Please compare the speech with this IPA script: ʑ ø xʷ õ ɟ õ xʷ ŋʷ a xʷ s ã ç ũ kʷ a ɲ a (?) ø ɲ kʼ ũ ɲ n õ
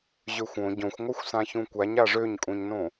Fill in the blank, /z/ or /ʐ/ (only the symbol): ʐ